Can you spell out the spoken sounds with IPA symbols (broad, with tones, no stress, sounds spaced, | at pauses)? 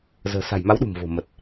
z ə̤ː˨˩ s a̤˨˩ j m a˨˦ w ɗ ṳ˨˩ m v o̤˨˩ m ə˨˩ t̚